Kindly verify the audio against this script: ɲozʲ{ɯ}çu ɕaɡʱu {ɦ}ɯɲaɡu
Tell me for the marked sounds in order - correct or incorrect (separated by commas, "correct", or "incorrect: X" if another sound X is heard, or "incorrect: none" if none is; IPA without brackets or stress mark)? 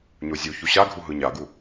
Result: incorrect: u, correct